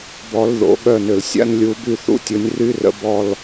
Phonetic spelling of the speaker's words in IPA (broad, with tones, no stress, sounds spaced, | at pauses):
b ɔ˨˦ l ð o̰˨˩˦ ɠ œ˦˨ n ʏ˨ l sʲ a̰˦ n lʲ u˨˦ b y˦˨ θ ṵ˦ tʲ ʊ˨˦ nʲ r y˦ r ə̰˨˦ b ɔ˦˨ l